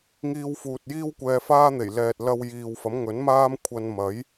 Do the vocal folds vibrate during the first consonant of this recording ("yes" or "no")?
yes